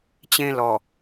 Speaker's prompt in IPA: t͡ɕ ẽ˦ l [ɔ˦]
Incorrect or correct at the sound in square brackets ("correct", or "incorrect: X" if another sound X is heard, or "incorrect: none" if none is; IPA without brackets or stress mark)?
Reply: incorrect: ɔ˨